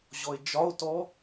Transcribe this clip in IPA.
ʑɔe̯d͡ʒɒo̯tɔ

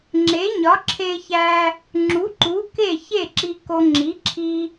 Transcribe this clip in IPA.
ŋ͡ǁe˩˥ɲɒ˩˥ǁʰe˧çæ˧ | ŋ͡ǁu˩˥ǃu˩˥ ke˥˩ çe˥˩ǁi˧ko˧ ŋ͡ǁi˩˥ǁʰi˧

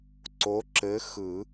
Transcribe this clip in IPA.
ǀo˨˥ ǁɘ˨˥xɯ˨˩˦

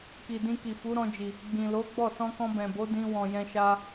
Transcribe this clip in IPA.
ki˨dĩ˧ki˨fu˨˦ ɾɔ̃˧d͡ʒi˨ | ɡ͡bĩ˨ lo˨˦ɡ͡bɔ˦˨ sɔ̃˧kɔ̃˧bɛ̃˨bo˨˦ dĩ˧wɔ̃˨jɛ̃˧ʃa˧

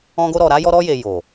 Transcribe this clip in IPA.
ɔ̃˧ɡo˧ɾɔ˨ ɾa˨˦jɔ˧ɾɔ˧je˨ jo˨

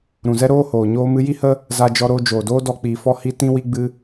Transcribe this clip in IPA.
ɾũ˨zɛ˦ɾoː˦ hoː˨ ɲoː˧mɨ˧ji˦hə˦ | za˧d͡ʒɔ˧ɾoː˧ d͡ʒoː˨doː˦dɔ˧ k͡piː˧fɔ˦hi˦ tĩ˦wi˦ɡ͡bɨ˦

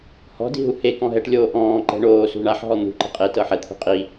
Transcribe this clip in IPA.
hɔ̤di̤ ɦuhekɔ̃ ɦɛʈlʲoː ʔɔ̃ːǃɛ̤ ɳoːsṳ ɳaħɦɔ n̪ṳǃi̤ qʼe tɤħɛt̪ʰṳ qʼi

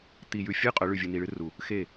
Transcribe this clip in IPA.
t̪i˨jʉ˨fʲɨ˦ qʼɵ˨˦ɭʉ˨vʲɨ˨ ni˨ɭɨ˦ru˨ | xe˦˨

